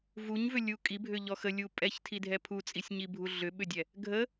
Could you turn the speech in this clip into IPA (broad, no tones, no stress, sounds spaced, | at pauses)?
v u ɲ v ʏ lʲ u kʼ i bʱ ʏ ʎ ɔ x ə lʲ u pʼ ɛ ç tʰ i dʱ ɛ pʰ u t͡sʼ i sʲ ɲ i bʱ u ɮ ʏ ɓ ʏ dʲ ɛ | ɡʱ ə